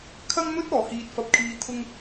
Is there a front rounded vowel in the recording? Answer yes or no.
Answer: no